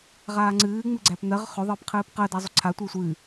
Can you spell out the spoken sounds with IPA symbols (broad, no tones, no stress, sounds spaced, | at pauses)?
ʁ aː ŋ͡ǀ ɨː ŋ͡m ɨ ɡ͡ǀ æ p n̪ ɜ ʁ χ ʏ ðˤ ɨː p qʰ ɨː p q ɜ d a zˤ ʏ ǀʰ a tʷ ɨː sʷ ɨː